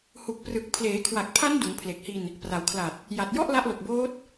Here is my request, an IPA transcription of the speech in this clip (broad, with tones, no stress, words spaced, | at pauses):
hu˨˩k̚prɯ˨˩k̚ pʰleː˩˦kʰwa˨˩k̚pʰa˦˥n du˩˦npʰle˨˩k̚hi˧n | pra˩˦wkʰla˨˩t̚ | ja˨˩t̚jɔ˥˩ʔ la˦˥ʔlo˨˩k̚boː˦˥t̚